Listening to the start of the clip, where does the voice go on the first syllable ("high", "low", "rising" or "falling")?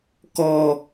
high